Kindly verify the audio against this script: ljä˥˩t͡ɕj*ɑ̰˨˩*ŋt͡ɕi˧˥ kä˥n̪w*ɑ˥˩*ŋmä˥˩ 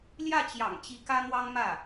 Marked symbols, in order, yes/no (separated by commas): yes, no